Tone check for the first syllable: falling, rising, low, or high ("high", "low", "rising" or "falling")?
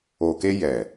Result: low